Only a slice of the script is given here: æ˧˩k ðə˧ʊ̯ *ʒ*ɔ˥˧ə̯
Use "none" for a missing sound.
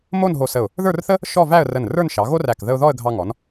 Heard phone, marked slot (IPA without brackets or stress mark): ð